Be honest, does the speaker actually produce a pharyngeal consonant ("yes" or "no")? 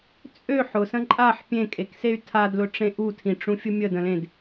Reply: yes